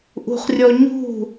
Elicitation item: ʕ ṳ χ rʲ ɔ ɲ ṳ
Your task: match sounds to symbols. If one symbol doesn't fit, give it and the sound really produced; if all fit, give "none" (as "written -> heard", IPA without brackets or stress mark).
ʕ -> ʔ